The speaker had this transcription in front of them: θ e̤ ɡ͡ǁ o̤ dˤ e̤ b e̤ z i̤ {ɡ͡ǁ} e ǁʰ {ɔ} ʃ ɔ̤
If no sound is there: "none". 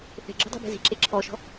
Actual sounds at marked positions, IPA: ǁ, ɔ

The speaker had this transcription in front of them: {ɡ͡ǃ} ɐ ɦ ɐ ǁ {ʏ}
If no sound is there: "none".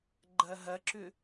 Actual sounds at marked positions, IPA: ɡ͡ǃ, ʏ

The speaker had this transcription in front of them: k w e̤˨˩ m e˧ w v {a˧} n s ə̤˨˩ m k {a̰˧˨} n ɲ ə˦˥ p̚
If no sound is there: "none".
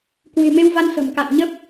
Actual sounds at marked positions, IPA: a˧, a̰˧˨

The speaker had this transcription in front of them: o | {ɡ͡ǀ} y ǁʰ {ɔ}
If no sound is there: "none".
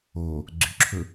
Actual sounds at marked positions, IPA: ɡ͡ǀ, ɵ

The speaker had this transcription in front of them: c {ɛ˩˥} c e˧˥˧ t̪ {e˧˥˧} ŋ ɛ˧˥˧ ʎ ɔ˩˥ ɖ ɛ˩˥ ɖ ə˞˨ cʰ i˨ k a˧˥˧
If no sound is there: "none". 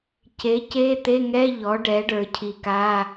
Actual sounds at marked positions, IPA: e˩˥, e˧˥˧

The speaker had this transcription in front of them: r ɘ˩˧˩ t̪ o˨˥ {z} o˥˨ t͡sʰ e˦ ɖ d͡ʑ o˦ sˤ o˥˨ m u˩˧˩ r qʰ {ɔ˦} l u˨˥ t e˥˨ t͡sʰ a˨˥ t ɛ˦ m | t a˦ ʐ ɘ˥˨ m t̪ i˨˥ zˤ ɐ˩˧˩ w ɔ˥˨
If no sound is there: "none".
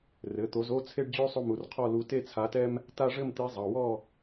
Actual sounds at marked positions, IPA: z, ɔ˥˨

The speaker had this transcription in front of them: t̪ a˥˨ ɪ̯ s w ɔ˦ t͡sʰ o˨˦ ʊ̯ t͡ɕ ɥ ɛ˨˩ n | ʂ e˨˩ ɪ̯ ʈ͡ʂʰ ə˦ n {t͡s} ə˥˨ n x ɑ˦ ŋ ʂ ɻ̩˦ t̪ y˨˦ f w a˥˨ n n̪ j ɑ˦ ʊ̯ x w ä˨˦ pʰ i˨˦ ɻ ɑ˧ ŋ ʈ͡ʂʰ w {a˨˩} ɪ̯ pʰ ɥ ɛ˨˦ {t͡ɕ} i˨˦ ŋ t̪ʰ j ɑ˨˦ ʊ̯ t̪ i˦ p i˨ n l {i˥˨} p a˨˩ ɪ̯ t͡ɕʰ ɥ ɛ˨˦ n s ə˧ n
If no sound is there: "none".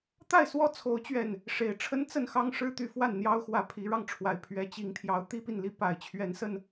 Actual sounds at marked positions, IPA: t͡s, a˨˩, t͡ɕ, i˨˦

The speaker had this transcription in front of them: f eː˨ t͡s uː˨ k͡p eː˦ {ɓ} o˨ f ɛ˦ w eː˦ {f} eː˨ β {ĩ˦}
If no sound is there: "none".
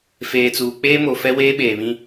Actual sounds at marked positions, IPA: m, ɓ, ĩ˦

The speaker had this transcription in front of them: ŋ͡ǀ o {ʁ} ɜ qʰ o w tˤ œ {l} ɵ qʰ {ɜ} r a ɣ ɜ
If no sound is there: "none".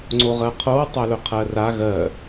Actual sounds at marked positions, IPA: ʁ, l, ɜ

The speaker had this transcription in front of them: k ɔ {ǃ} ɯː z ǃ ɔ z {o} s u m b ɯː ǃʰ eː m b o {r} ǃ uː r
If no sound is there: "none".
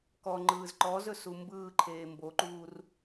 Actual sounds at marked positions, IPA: ŋ͡ǃ, ɵ, none

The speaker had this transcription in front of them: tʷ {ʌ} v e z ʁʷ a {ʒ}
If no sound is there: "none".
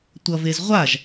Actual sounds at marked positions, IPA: ʌ, ʒ

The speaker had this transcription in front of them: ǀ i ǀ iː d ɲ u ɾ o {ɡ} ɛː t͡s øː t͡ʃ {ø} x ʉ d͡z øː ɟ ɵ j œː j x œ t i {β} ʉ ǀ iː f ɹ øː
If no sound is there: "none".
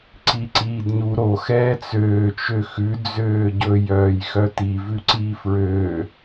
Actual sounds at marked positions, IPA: x, ø, v

